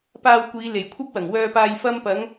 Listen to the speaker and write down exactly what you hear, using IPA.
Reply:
p aː˧ w kʷ iː˨˧ l e˨˩ j kʷʰ ɐ˥ p̚ w ɐ˨˩ ŋ w œː˧ p aː˧ j f ɐ˧ m p ɐ˨˧ ŋ

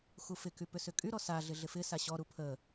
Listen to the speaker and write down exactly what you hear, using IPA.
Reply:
x u f ɪ k y p ʏ s ʏ kʼ y ɾ ɔ s a ɮ ɪ ɮ ɪ f ɪ s a ɕ ɔ ɾ u pʰ ə

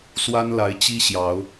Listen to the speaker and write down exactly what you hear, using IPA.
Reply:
s w a˦ n l a˨˦ ɪ̯ t͡ɕ i˦ ɕ j ɑ˨˦ ʊ̯

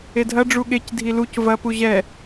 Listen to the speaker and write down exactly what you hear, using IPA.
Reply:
e dʱ ɐ ɖ͡ʐ u ɠ e c dʱ i l u c v ɐ p u ʑ ɛ

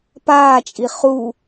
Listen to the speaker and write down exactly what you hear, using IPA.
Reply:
p aː t͡ʃʼ i χ u

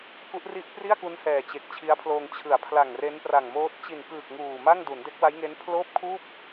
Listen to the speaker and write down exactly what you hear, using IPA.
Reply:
k u˦˥ ʔ r i˥˩ ʔ p r i˥˩ a̯ k u˦˥ n h ɛː˨˩ t͡ɕ e˨˩ k̚ t͡ɕʰ i˦˥ a̯ pʰ l oː˧ ŋ t͡ɕʰ ɯ˩˦ a̯ pʰ l a˨˩ ŋ r e˦˥ n p r a˨˩ ŋ m oː˦˥ t̚ t͡ɕ i˨˩ n k ɯː˨˩ k̚ ŋ uː˨˩ m a˥˩ ŋ d u˩˦ n d e˦˥ k̚ w a˦˥ j ŋ e˦˥ n pʰ l oː˥˩ p̚ kʰ uː˥˩ p̚

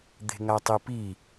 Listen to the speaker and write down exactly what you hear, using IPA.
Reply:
d̪ e̤ ŋ a tˤ i p i

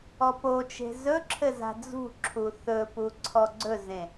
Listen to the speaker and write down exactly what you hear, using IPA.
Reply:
ɔ p o t͡ʃ e̤ z ɵ ǁʰ ɘ z a̤ d͡z ṳ ǁʰ u θ ɵ p u ǀʰ ɔ ɡ͡ǀ ɵ z ẽ

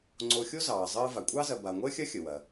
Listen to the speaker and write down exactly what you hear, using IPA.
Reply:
ŋ͡ǀ o˨ xʲ o˥ z ɑː˩ zˤ əː˦ v a˩ kʷʼ ɑ˥ z ɐ˨ b a˩ ŋʷ əː˥ xʲ ɐ˥ xʲ ə˩ w ɐ˩

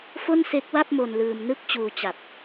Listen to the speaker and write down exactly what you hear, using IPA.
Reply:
f o˥˩ n s e˦˥ k̚ w a˥˩ p̚ m o˧ n l ɯː˧ m n ɯ˥˩ k̚ t͡ɕ uː˧ t͡ɕ a˨˩ p̚

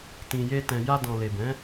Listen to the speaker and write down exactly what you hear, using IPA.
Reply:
t ĩ˨ j e˧ t ɛ̃˨ j a˧ d ɔ̃˨ l e˨ b ɛ̃˨˦

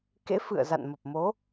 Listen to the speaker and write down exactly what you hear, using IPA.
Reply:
k ḛ˧˥ f ɨ̰˧˨ ə̯ z a̰˧˨ n m ə˨˩ p̚ m o˨˦

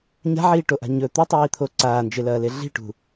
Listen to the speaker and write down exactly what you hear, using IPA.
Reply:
ɲ a̤ ʕ iː ʈ o ʔ a̤ ɲ ɵ t̪ u tˤ iː t̪ʰ o ǀ aː n d͡ʒ e l ɐː l e ɮ i̤ ʈ ṳ

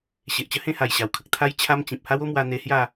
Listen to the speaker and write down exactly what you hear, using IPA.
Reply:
ɕ e˨ ʔ t͡ɕ ə˧ h ẽ˥˧ h a˨˩ j ɕ a˨˩ w kʰ ə˨ k̚ t̪ʰ a˧ j t͡ɕʰ a˦ m t͡ɕ ĩ˨ p̚ h a˦ w o˦ m w a˧ n̪ e˧ h j a˥˧

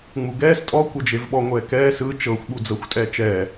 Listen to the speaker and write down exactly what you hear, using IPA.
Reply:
ŋ͡m u ɡ ɛː s tʼ ɔ kʷ ɤ d͡ʒ e v ɓ ɔ ŋʷ ɛː k ɛː s ɯ t͡ʃ ɤ xʷ ɓ u d͡z ɤ xʷ tʼ ɛː t͡ʃ ɛː

